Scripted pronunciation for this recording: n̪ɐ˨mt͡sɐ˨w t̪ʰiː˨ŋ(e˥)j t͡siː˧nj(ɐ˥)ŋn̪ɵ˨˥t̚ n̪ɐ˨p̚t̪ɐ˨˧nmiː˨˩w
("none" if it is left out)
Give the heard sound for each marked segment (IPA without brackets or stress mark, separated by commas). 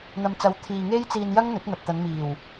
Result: e˥, ɐ˥